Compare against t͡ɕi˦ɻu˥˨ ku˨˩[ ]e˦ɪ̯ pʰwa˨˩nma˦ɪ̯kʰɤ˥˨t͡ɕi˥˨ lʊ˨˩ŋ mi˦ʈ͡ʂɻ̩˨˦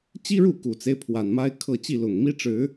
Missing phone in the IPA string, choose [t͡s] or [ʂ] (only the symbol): t͡s